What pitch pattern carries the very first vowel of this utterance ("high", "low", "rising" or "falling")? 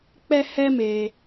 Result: high